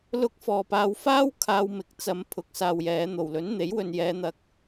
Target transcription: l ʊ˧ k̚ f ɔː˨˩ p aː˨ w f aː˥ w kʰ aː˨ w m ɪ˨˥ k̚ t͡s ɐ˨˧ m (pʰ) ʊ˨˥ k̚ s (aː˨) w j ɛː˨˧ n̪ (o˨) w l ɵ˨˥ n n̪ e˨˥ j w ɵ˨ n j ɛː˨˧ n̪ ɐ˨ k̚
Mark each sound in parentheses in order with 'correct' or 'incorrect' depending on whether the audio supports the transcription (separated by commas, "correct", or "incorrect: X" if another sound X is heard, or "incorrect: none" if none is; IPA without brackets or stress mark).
correct, correct, incorrect: o˨˩